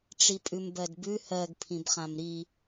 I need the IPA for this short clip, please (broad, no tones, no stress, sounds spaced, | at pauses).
ʈ͡ʂ i pʼ ʉ m b ɜ d b ʉ h ɜ ɡ pʰ ĩ b χ ã m ɾ i